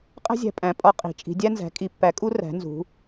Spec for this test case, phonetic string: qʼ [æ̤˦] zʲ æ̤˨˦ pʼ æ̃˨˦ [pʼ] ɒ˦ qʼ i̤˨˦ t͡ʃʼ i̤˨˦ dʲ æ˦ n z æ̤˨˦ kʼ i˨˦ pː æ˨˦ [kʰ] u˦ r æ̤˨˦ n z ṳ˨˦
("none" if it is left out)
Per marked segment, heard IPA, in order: æ̤˦, pʼ, kʼ

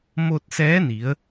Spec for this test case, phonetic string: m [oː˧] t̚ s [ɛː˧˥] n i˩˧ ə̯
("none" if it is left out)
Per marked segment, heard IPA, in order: o˧, ɛː˧˥

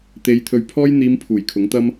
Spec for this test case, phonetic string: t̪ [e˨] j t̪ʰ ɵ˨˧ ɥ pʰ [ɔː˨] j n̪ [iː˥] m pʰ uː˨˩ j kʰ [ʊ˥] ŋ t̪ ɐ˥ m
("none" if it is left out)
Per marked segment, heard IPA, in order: e˨˧, ɔː˥, iː˨˧, ʊ˨˥

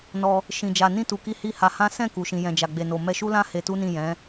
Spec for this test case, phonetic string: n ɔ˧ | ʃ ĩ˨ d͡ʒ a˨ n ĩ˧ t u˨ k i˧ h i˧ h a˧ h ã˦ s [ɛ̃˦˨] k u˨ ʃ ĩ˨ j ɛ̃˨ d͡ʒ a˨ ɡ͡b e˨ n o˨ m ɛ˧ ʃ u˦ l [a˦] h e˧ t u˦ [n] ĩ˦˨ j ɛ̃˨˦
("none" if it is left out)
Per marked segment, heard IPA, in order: ɛ̃˦˨, ã˦, n

